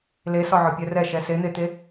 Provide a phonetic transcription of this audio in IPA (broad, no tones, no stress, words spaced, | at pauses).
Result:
lesɒʕɒ pʲɛrɛ ʃɛsen̪et̪e